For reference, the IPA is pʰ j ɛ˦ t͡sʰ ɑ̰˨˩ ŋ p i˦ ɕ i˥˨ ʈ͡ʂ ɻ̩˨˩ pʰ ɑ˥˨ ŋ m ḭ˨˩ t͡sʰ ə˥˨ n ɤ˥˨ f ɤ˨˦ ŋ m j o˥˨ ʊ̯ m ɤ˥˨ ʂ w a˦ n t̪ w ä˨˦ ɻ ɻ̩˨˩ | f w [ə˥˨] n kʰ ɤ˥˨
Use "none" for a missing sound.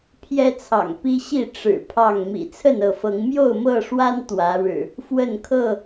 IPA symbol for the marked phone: ə˥˨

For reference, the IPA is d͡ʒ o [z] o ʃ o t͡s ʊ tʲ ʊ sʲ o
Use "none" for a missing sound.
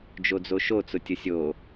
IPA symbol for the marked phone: d͡z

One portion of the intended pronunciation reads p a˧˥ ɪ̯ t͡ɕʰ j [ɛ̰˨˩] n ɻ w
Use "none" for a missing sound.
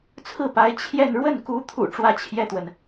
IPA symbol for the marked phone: ɛ˥˧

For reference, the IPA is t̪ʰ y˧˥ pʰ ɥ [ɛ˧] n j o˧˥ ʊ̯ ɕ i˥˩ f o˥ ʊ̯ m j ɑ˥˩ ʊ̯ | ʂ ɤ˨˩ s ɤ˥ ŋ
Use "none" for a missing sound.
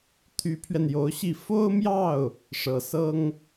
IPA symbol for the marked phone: ɛ˧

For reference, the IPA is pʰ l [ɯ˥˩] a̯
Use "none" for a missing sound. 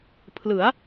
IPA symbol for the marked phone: ɯ˩˦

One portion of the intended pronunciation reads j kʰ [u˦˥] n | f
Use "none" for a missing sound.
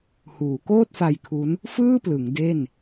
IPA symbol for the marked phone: u˦˥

